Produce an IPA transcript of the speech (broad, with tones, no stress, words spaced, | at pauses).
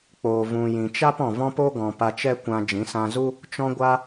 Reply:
k͡poː˨vũ˨ jĩ˨t͡ʃa˦p ɔ̃˨vɔ̃˦po˦ɡɔ̃˨ pa˧t͡ʃɛ˦kʷã˧ d͡ʒĩ˨˦sã˧zu˦ | t͡ʃɔ̃˧ɡʷa˧